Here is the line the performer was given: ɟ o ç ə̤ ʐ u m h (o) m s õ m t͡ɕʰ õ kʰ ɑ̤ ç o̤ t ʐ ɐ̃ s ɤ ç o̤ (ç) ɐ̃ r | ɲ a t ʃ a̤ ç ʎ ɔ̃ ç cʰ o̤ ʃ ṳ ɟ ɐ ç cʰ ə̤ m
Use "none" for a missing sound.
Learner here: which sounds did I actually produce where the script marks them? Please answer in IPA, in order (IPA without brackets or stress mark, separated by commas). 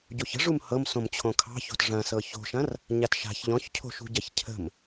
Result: ɤ, ʃ